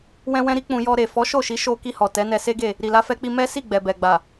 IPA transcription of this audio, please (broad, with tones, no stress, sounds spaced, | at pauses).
w ɛ̃˧ w ɛ̃˧ ɾ i˦ k͡p ũ˧ j ɔ˧ ɾ e˨ f ɔ˨˦ ʃ o˦˨ ʃ i˨˦ ʃ o˧ k i˧ h ɔ˨ t ɛ˨˦ n ɛ˧ s e˦ ɡ e˦˨ | ɾ i˨ l a˧ f ɛ˧ k͡p i˧ m ɛ˦ s i˦˨ ɡ͡b ɛ˨ b ɛ˨ ɡ͡b a˨